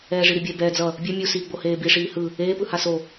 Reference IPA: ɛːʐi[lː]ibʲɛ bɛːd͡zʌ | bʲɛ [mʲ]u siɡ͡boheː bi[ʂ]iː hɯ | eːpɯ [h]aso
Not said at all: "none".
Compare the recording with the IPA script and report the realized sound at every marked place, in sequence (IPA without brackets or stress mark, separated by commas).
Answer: ɾ, mʲ, ʂ, h